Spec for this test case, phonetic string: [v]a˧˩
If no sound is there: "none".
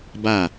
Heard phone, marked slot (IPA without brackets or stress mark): b